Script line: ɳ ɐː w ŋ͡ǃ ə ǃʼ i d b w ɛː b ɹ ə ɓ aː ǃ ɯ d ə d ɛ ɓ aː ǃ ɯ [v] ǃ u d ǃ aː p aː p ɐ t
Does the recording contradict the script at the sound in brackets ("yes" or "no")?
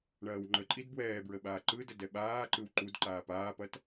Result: yes